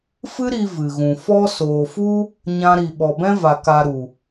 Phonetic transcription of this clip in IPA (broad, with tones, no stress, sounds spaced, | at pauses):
f ɨ˦ ɾ i˧ v ɨ˨ ɣ ũ˨ f ɔ˦ s oː˨ f u˦ | ɲ ã˦ ɾ i˧ ɓ ɔ˨ b ɛ̃˦ v a˨ k a˧ ɾ u˨